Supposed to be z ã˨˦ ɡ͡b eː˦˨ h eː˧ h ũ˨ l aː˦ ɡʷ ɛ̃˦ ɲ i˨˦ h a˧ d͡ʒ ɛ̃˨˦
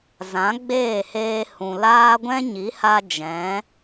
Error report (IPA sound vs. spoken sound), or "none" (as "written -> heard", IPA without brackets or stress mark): none